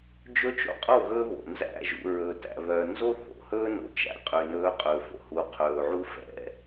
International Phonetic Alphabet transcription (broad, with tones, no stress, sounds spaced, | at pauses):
d͡ʒ ɵ˦ t͡ʃ o̰˦ qʼ o˦˨ ɣ ɵː˦ β o̰˨ n z æ̰˦˨ ʒ ṵ˨ ɹ ɵ˨ t æ̰˨ β œ˨ n z o˦ θ o̰˨ h ɵː˦ n o̰˨ t͡ʃ æ̰˨ qʼ ø˨ n ɵː˨˦ qʼ ɵː˨ f o̰˨ h u˨ qʰ ɵː˨ ʕ u˦ f ɛ̰˦